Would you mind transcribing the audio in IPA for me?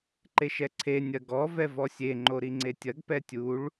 ǃ e ʃ ɛ ǀʰ e nʲ ɐ ɡ ɔ v ɛ v ɔ sʲ e ŋ͡ǃ o ɾ i ŋ͡ǀ e tʲ ɐ ɡ p ɛ tʲ u ɭ

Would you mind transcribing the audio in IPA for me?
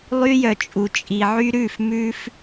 lˠ y˦ j œ˨ t͡ʃʼ u˨ t͡ʃʼ i˨ ʕ y˦ ɾ ʉ˦˨ f m ʉ˦ f

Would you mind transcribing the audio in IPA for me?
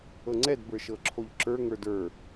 ɤ ŋ͡ǀ ɛ d b ə˞ ʃ ɤ ǁʰ o ʎ ǁ ə˞ ŋ ə˞ d ə˞

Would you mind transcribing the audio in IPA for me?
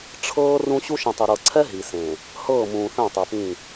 ʈ͡ʂʰ ɤː˦ r ũ˦ ɕ u˦ ʃ ĩ˨ tˤ i˨ ɾ ɤ˨ ǀʰ ɛ˦ ɦ i˨ s ẽ˨ | h ɤː˦˨ m ũː˨ θ ɛ̃˦˨ tˤ ɛ˨ p ĩ˦˨

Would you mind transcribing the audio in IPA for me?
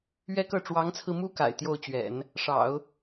ɥ ɛ˥ k ɤ˥˩ ʈ͡ʂ w ɑ˧˥ ŋ t͡sʰ ɹ̩˧ m u˥ k a̰˨˩ ɪ̯ t̪ j o˥˩ ʊ̯ t͡ɕ ɥ ɛ̰˨˩˦ n | ʂ ɑ̰˨˩˦ ʊ̯

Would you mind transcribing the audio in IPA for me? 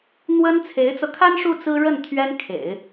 n̪ w ə˥ n t͡sʰ e˧˥ ɪ̯ t͡s ɤ˧ kʰ a˥ n ʂ u˥˩ t͡s ɹ̩˥ ɻ ə˥˩ n t̪ʰ ɥ ɛ˥ n kʰ ḛ˨˩˦ ɪ̯

